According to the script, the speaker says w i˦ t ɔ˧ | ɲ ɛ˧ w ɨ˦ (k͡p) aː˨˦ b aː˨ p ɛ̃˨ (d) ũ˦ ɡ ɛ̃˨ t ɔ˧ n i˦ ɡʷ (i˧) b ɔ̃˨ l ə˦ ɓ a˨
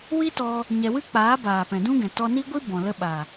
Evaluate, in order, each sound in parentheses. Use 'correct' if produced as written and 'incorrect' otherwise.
correct, correct, incorrect

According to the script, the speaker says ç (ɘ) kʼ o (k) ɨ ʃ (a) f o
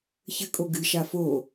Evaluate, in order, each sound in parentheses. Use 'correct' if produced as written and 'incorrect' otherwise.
correct, incorrect, correct

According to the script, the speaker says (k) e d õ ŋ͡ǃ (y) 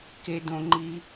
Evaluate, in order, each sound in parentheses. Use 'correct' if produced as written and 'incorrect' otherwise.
correct, incorrect

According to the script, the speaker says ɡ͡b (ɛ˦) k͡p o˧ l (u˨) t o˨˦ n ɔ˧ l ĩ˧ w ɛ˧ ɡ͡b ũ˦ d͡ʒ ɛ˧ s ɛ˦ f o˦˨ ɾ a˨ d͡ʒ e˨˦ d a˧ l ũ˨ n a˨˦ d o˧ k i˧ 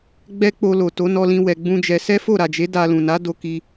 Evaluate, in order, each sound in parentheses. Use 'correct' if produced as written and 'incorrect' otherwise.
correct, incorrect

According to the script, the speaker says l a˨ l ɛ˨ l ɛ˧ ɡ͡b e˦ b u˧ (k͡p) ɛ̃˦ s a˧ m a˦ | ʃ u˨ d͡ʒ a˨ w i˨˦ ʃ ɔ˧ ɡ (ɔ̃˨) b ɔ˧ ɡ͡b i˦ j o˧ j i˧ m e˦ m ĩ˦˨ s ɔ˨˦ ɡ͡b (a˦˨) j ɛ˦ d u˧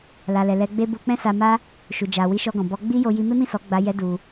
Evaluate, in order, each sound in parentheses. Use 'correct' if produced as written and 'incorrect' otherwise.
correct, correct, incorrect

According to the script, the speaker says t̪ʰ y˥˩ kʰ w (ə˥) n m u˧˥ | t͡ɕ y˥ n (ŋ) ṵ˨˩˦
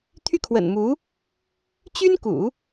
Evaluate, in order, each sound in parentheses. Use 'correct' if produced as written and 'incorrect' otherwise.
incorrect, incorrect

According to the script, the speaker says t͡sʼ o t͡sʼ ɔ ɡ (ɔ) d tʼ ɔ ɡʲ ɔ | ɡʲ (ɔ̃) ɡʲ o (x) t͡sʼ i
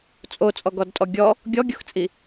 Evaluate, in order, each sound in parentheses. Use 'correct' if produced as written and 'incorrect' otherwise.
correct, incorrect, correct

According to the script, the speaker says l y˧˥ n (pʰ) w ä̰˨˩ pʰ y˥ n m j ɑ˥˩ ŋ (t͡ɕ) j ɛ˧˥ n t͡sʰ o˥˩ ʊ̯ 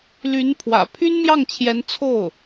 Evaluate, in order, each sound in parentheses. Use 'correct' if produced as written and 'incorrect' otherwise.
correct, incorrect

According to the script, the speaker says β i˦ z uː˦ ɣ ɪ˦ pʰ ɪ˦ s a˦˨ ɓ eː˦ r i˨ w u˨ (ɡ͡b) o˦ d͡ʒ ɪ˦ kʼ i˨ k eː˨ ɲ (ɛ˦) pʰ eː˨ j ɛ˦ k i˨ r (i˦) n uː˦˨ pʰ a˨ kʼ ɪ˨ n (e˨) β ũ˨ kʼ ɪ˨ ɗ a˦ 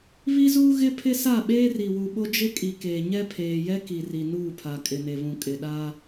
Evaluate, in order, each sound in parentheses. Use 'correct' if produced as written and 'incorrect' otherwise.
incorrect, correct, incorrect, correct

